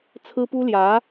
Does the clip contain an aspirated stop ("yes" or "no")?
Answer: yes